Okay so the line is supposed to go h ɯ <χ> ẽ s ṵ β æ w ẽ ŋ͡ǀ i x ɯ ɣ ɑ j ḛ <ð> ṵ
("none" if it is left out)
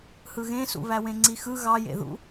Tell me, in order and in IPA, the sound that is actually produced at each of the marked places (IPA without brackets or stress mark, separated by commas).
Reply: ɣ, ð